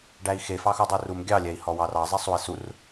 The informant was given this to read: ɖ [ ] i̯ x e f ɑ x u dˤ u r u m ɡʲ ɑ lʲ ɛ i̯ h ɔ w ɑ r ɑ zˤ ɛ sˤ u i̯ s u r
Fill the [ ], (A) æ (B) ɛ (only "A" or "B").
A